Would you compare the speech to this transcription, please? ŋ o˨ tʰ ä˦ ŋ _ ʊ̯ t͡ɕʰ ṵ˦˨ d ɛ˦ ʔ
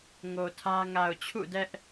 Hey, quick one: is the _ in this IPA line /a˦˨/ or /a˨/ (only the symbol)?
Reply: a˨